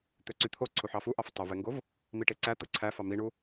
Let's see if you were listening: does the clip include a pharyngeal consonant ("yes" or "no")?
yes